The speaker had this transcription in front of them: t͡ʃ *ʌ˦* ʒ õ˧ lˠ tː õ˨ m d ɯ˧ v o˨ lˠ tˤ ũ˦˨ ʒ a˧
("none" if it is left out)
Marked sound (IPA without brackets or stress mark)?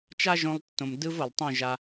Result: a˦